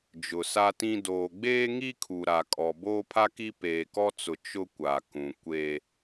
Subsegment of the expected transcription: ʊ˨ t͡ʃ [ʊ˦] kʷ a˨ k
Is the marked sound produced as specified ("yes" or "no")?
yes